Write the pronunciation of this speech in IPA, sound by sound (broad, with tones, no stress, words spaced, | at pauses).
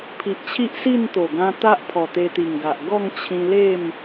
pʰi˨ʔt͡ɕʰi˦ʔsi˥˧nt̪o˨˩ ɡã˧t̪a˦ʔ pʰɔ˨˩t̪e˧t̪i˨˩ŋɡa˨ʔ ɡɔ˥˧ŋt͡ɕʰĩ˧le˥˧m